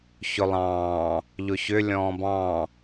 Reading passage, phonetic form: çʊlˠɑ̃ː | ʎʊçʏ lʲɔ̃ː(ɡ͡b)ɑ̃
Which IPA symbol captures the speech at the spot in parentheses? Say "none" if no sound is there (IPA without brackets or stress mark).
b